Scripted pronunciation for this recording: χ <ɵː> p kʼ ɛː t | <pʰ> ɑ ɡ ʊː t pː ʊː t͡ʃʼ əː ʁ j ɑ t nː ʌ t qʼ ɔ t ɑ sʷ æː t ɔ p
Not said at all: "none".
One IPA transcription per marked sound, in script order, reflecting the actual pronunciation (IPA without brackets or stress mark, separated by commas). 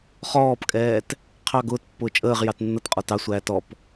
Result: ɔː, qʰ